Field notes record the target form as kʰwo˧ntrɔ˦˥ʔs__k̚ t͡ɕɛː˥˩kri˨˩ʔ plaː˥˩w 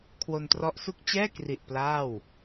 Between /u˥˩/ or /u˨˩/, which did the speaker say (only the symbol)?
u˥˩